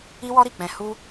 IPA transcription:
i˦ w ɔ˦ ɾ i˦˨ k͡p ɛ̃˧ h u˦

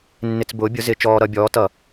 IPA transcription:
nː ɪ˧ t͡s b ʊː˨˥ bʲ ʊ˨˥ z ɪ˧˩˧ t͡ʃ ɔː˧ ɾ ʌ˧ bʲ ɔː˨˥ t ʌ˧˩˧

